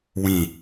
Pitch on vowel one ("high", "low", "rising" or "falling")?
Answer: low